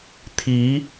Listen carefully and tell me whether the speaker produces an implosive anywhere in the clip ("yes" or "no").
no